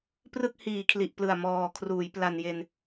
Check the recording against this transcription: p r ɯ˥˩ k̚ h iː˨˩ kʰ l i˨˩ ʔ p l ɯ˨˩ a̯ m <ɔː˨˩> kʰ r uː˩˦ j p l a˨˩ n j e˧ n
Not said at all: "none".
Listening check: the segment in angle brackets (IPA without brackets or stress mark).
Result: ɔː˨˩